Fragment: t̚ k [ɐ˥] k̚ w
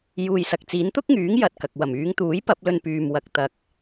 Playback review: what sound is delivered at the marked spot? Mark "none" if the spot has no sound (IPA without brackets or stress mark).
ɐ˨